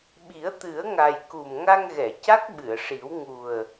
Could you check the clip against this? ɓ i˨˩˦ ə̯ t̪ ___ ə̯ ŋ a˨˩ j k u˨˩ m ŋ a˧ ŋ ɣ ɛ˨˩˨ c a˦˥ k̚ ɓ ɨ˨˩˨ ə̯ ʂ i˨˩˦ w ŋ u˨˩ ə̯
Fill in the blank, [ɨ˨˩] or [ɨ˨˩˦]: ɨ˨˩˦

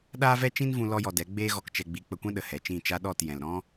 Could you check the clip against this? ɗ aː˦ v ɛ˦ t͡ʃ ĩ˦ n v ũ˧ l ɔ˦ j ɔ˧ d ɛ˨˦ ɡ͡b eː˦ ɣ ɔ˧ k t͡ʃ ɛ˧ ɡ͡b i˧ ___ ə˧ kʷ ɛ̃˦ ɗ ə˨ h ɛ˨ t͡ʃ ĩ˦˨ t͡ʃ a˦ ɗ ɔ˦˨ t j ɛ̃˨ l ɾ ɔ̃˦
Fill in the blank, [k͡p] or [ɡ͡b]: k͡p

